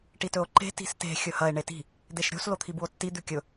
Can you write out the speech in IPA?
ʈitɵo̯ǃe̤ ti̤ste̤ xʲɵhɐe̯ ɳeti̤ | d̪eʃɾʲo̤s lot̪ʰibuo̯tːi d̪ʉkʲɵ

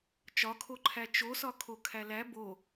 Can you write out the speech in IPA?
t͡ʃɒkʰoǃʰæ t͡ʃosɒ kʰokʰælæ bo

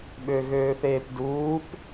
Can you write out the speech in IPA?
ɓøɣøːθeːpduːp

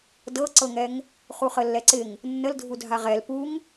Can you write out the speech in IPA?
dɤǀɤŋɛŋ | χuχəlːɛǀɪŋ | nːəldʱu dʱaʁɛl puŋ

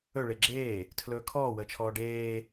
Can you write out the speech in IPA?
ɵ ɭeɡ͡ǁeː | tʰlɵːkʰɔː wəːt͡ʃʰɔːɖeː

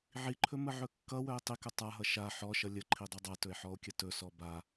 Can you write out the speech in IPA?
ʕiǃʰɵ məʕɵkːʌwœe̯ tˤikɵ tˤaɦʌ ʃa ħɔʃʌ lʲə ǃʰidˤœdˤatɵe̯ ħɔo̯kʲətɵsɔ ba

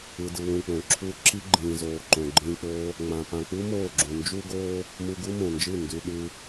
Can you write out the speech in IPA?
ɯ˧dɯ˧wũ˧k͡põ˨ ǁʰu˧ ǁi˦ ɡ͡ǃĩː˨zoː˨ ǃõ˨ɡ͡ǃĩː˧k͡poː˦ | ŋ͡mã˨ pã˨k͡pu˦ moː˦˨ɡ͡ǁũ˨ nd͡ʒu˦ɡoː˦ | mu˧ɡu˦ mõ˨nd͡ʒɯ˦˨ ndʉ˨ɗʉ˧

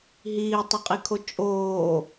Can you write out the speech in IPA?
ɦiːtˤəqʼikʰo t͡ʃʼoː

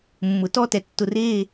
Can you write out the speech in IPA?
mːʊ˨tɔ˦tɛ˨ tːʊ˨ re˦˨

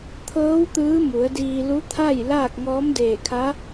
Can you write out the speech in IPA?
t̪ʰɤː˧˥w t̪ɯː˧˥mu˩˧ə̯diː˧ lu˧˥t̪ʰa˥˨j laː˥˨k̚ŋɔː˧˥mdeː˧˩kʰa˧˥

